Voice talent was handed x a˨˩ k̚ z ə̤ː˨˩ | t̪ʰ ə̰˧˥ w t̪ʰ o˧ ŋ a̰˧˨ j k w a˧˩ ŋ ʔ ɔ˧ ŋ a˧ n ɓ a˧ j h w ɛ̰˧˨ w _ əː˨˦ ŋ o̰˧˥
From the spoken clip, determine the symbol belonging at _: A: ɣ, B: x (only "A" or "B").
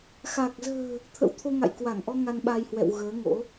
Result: A